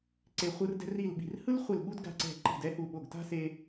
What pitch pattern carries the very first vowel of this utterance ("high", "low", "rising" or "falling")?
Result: falling